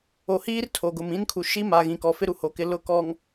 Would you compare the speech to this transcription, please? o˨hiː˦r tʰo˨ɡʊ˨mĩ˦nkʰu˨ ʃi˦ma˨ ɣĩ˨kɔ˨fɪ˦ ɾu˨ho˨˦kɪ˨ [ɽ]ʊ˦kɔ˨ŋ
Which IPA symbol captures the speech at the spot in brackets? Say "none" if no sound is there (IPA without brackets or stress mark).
l